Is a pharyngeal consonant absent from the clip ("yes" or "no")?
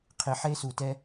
no